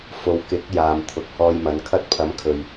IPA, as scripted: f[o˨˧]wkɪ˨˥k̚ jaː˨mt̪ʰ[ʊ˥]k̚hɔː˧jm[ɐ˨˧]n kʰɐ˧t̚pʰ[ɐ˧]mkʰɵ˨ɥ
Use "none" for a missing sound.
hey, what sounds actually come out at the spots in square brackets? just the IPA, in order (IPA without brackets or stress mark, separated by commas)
o˨˧, ʊ˨, ɐ˨˧, ɐ˨˥